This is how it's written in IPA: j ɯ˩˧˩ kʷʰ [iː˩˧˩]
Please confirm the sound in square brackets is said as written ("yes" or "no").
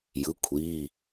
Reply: yes